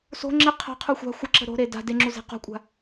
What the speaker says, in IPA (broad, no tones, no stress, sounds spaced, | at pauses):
s o̤ ŋ͡ǁ e qʰ a̤ qʰ u xʷ a̤ xʷ ə ǁ ə̤ ɾ o̤ ɾ e d a̤ d e ŋ͡ǁ u z e̤ q o̤ kʷʼ a̤